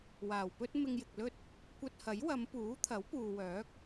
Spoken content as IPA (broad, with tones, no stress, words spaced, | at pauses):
waː˨˩wpɵ˥t̚ mɪ˧ŋjɪ˨k̚lɵ˥t̚ | kʷɐ˧t̚hɐ˨˥jwɐ˨˧m puː˨˥t̪ʰɐ˨˥w puː˨wœː˨˥k̚